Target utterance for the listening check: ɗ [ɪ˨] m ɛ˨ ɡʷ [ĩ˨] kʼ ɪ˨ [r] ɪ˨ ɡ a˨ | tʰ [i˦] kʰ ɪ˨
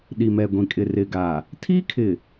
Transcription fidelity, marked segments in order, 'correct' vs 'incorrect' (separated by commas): incorrect, correct, correct, incorrect